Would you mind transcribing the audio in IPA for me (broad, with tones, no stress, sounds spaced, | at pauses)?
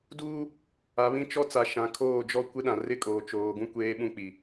d uː˦ | a˨ β ĩ˦ t͡ʃ ɔ˦ t͡s a˨ ʃ ã˨ kʰ oː˦˨ d͡ʒ ɔ˦ kʷ ɪ˦ ɗ ã˨ r ɪ˦ kʼ oː˨ t͡ʃ oː˨ ɡ ũ˦ kʷ eː˦ ɓ ũ˦ k͡p i˨